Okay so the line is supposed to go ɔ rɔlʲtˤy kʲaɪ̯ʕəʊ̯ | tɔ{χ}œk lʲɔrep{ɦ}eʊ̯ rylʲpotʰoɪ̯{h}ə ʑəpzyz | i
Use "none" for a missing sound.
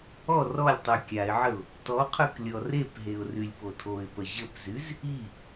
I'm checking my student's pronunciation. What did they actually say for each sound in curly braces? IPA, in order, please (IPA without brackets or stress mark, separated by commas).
qʰ, ɦ, p